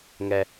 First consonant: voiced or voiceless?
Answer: voiced